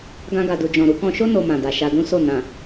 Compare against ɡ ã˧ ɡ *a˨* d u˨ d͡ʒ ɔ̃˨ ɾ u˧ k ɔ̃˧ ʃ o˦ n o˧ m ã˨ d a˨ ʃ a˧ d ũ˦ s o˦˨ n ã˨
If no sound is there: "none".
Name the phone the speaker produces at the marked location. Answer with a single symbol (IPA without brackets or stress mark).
a˨